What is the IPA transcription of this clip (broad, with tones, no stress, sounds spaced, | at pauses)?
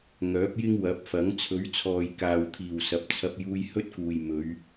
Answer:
ŋ œː˨˥ p̚ j ɪ˥ ŋ w ɐ˨˥ p̚ f ɐ˨˥ ŋ t͡sʰ ɵ˨˥ ɥ t͡sʰ ɔː˨ j k aː˨ w t̪ʰ iː˨˩ w s ɐ˨˥ p̚ t͡sʰ ɐ˧ p̚ j uː˧ j h ɵ˥ t̚ k uː˨ j m ɵ˨˧ ɥ